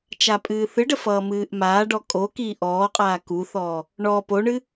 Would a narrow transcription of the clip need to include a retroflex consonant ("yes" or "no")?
yes